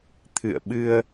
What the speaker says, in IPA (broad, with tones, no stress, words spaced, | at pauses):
t̪ʰɨ̰˧˨ə̯ɓɨ˧ə̯